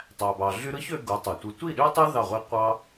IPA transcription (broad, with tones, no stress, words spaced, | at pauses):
tˤæ˨bɑ˨ɮy˦ ɾɯ˦çø˧ ɡu˨˦tˤe˨tʷɯ˧ tʷi˦˨ɗø˦tˤe˦ ðɑ˦˨ʁʷe˦ qʷɑ˦